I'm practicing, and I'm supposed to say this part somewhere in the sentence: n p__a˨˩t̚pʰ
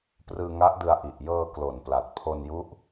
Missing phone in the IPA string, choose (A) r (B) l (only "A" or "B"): B